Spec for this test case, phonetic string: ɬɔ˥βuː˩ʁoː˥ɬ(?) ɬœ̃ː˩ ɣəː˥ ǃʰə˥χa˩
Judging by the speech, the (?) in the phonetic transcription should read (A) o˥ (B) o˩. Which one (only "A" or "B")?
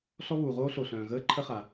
B